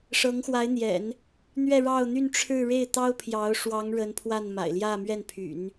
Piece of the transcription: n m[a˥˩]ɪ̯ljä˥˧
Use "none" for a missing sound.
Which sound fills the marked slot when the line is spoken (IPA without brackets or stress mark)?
a̰˨˩